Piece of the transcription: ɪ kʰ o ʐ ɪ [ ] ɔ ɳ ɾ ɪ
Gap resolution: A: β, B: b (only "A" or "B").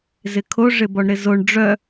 B